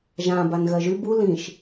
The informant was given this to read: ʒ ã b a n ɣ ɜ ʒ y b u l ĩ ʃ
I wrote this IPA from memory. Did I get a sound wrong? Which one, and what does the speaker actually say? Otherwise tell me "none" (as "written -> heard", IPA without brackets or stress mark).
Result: none